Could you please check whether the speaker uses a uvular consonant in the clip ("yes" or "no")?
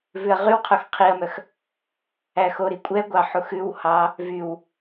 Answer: yes